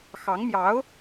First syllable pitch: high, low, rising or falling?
rising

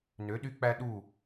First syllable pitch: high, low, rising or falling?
rising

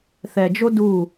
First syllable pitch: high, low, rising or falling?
low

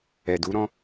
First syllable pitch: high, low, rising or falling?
low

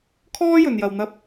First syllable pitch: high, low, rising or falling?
high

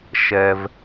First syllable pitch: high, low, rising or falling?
high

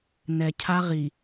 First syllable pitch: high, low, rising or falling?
low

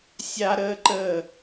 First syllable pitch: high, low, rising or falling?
high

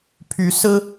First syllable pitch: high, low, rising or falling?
rising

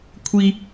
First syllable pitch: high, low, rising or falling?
high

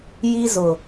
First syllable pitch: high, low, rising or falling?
high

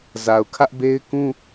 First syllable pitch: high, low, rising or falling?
low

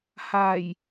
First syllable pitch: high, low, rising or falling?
low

